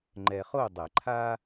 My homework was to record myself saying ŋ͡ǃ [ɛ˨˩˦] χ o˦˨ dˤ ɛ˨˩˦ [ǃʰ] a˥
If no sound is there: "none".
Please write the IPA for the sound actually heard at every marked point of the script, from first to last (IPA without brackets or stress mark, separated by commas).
ɛ˨, ǃʰ